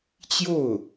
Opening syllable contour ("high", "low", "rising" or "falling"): falling